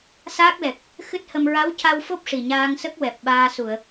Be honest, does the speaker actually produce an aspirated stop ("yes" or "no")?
no